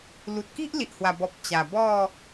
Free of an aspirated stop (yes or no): yes